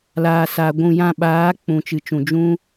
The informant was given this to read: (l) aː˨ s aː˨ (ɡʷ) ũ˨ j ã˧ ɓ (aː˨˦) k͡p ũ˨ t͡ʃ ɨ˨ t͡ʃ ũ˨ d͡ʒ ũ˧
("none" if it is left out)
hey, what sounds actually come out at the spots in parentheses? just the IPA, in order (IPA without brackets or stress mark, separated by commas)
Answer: l, ɡʷ, aː˨˦